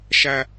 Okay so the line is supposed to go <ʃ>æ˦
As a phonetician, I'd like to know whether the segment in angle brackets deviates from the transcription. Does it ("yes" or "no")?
no